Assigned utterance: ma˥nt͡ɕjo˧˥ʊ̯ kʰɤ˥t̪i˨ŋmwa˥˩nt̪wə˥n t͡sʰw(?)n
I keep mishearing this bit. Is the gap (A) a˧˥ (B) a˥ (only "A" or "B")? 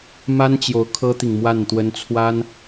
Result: B